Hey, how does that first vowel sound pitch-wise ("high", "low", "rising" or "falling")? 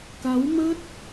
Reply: rising